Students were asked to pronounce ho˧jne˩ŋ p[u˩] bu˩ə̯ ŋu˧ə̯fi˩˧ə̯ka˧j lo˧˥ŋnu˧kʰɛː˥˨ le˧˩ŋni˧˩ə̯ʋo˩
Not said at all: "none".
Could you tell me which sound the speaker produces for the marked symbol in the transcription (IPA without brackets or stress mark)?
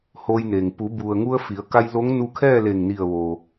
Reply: u˩˧